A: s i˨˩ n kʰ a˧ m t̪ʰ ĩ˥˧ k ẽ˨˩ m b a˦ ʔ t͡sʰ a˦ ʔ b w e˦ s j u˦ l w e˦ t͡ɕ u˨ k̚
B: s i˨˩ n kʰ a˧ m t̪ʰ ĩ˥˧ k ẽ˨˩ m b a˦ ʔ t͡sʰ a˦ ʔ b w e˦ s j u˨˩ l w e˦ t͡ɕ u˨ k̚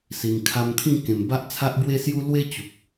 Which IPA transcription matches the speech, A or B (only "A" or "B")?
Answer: A